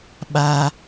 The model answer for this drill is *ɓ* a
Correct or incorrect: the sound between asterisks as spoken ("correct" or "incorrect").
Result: correct